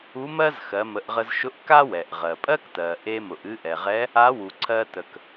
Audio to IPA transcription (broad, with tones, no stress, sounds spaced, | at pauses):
u˧˥ m ɜ˥ z x ɜ˩˧ m ə˩˧ ʔ ʁ ə˧ z ʃ ʊ˧˥ ʔ k a˥ w ɛ˩ ʔ ʁ ɜ˩ pʼ ɜ˥ k t ɜ˩ ʔ e˧ m ʊ˩ ʔ ɨ˧ ʔ ɛ˩ ʁ ɛ˧˥ | a˧˥ w u˩ ǀʰ ɜ˧ t ə˩ k